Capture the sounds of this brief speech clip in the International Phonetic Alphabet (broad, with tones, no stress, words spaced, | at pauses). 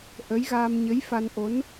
ʔə˧˥jɣa˧m ɲə˧˥jfa˧nʔo˧˥n